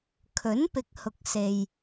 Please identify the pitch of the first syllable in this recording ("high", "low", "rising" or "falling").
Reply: rising